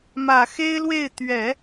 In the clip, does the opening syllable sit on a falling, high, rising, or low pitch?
low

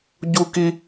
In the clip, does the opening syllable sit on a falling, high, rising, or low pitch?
high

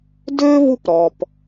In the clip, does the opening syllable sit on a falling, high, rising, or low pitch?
high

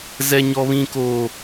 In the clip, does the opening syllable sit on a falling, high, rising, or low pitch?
high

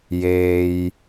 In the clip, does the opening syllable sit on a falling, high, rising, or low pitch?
low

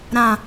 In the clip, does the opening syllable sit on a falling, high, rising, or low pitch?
low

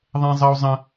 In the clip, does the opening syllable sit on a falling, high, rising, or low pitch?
high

